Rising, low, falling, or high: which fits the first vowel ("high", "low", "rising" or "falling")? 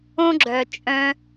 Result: high